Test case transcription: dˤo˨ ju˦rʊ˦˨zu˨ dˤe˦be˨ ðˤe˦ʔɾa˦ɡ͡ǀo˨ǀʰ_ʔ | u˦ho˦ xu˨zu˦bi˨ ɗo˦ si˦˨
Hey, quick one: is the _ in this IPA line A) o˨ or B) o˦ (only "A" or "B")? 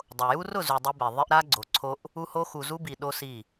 B